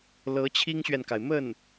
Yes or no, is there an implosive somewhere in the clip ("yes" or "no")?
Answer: no